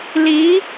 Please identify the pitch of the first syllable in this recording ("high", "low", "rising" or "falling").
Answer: rising